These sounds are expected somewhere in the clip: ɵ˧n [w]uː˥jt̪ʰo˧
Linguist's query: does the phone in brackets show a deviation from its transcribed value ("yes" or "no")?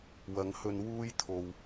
no